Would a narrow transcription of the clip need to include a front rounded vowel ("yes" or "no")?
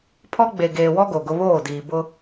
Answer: no